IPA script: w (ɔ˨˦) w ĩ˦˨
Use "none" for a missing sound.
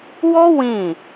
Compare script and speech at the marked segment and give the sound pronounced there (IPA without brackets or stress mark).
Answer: ɔ˦